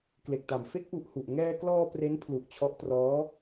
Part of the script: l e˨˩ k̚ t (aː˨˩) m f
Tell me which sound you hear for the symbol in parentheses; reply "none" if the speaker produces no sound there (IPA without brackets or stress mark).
a˨˩